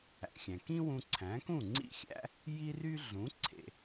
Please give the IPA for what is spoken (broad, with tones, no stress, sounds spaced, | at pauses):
æ̰˩ xʲ æ̃˩ k ĩ˥ w ũ˧ ǀʰ æ̃˩˥ k ũ˥˩ ŋ͡ǀ ḭ˥˩ xʲ æ̰˥ | j i˥ r y˥ ɮ ũ˩˥ ǀʰ ḛ˩